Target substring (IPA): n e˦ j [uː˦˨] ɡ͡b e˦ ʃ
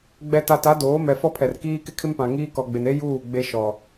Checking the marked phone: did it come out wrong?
no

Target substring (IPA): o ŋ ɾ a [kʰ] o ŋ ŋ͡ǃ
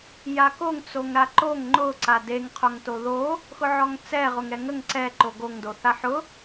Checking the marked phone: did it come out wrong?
yes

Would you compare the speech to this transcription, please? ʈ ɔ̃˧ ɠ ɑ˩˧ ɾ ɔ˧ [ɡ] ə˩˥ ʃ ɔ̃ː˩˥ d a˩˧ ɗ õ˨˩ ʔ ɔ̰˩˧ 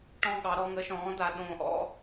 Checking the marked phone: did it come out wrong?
yes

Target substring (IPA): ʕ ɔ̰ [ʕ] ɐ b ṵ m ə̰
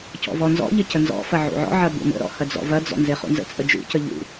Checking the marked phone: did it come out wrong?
no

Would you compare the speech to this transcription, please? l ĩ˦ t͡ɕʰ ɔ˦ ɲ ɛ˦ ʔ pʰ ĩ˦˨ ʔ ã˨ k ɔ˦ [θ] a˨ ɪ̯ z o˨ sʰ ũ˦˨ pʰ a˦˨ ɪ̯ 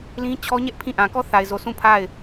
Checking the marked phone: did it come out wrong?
no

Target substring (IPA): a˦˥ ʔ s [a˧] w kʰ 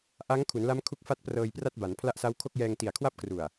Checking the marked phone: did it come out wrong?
yes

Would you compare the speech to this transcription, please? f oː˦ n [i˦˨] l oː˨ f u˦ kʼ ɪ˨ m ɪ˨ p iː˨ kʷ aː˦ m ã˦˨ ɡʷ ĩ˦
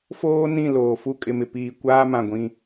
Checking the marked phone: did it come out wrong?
yes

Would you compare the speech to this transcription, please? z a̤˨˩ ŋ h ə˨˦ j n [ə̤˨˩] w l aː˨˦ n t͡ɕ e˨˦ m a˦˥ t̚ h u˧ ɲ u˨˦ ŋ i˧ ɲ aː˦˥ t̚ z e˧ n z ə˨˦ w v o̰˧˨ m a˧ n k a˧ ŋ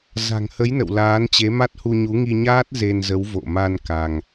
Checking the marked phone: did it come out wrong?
yes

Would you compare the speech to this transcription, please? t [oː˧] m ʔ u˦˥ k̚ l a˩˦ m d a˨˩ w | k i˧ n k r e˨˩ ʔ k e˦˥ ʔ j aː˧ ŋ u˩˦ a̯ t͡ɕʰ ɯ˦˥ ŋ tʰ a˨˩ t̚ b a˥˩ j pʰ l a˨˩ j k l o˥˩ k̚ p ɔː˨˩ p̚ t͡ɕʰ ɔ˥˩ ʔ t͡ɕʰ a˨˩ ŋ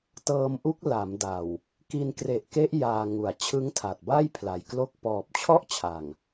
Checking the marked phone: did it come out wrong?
yes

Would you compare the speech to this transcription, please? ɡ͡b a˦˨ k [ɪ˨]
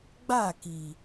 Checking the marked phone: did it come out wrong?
yes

